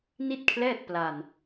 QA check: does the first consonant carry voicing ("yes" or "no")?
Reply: yes